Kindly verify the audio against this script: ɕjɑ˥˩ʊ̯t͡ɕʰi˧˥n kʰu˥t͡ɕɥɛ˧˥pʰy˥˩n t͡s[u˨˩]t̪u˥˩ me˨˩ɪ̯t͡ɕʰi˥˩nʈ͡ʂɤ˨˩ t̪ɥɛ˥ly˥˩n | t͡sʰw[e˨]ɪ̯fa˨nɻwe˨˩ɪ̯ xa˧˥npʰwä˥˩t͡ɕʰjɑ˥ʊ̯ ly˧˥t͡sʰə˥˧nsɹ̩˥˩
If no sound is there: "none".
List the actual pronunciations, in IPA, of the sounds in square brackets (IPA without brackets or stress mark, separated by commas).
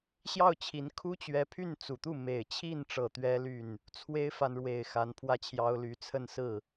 u˨˩, e˥